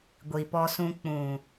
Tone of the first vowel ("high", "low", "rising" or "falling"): low